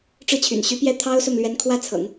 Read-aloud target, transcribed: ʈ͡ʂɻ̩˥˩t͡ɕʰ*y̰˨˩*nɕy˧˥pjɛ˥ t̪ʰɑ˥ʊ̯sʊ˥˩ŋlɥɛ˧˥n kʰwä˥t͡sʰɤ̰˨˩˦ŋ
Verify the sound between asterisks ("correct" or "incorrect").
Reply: correct